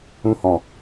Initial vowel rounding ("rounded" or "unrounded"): rounded